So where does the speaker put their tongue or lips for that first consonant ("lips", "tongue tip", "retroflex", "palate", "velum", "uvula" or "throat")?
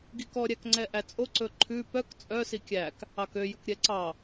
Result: velum